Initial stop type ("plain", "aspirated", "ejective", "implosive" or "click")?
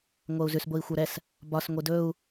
plain